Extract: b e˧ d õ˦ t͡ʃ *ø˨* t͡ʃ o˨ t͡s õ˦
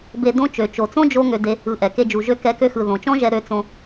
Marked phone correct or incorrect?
correct